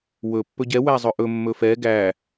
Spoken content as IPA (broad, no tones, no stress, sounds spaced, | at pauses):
w ɵ pː ɵ ɟ ɛ w æ zˤ ɵ ʔ ɵ mː ɵ f ɛ ɡ æ